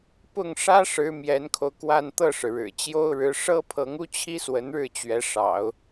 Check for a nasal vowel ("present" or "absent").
absent